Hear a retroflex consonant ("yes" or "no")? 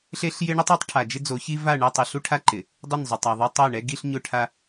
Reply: yes